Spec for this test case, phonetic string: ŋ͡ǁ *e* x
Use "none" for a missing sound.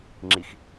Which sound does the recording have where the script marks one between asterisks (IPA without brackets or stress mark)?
i